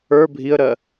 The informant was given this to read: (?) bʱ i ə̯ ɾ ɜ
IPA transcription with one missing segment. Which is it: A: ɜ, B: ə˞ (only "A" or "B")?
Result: B